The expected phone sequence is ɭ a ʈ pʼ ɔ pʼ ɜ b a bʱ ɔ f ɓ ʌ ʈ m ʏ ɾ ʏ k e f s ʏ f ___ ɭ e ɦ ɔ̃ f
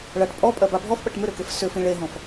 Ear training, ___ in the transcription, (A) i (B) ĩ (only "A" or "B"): B